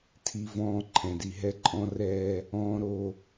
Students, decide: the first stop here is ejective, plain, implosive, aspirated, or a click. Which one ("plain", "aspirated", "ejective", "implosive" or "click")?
aspirated